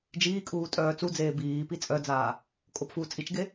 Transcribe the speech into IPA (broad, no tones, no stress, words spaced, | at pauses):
d͡ʒiːkʼuː tʼœːt͡sud͡zeː biːpi t͡sʼœd͡zaː | kʼopfuːt͡sʼit͡ʃɡe